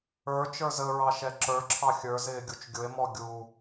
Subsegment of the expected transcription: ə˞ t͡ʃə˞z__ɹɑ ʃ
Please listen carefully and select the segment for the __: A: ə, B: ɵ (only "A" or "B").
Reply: A